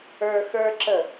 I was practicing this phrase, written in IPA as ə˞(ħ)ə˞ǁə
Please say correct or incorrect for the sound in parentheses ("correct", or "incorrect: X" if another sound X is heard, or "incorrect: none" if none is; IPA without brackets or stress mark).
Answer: incorrect: x